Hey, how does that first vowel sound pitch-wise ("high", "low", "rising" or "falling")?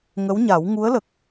rising